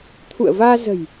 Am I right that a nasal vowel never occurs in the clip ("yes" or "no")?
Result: yes